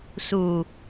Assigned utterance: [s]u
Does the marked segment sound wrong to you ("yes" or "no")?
no